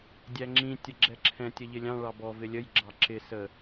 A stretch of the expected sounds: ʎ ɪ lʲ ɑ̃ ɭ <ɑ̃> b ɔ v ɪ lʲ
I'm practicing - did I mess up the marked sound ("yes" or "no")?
yes